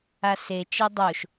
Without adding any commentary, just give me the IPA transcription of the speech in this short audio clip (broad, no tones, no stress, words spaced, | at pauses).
ase t͡ʃedˤoʃ